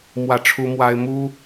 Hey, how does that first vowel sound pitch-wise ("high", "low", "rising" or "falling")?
falling